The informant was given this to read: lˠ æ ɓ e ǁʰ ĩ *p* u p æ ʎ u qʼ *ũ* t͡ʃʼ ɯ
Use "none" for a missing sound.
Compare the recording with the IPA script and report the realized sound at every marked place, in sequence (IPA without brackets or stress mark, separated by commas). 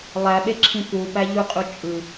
p, u